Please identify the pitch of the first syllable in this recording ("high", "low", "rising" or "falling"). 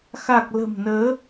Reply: low